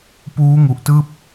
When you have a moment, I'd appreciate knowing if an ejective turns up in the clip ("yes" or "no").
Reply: no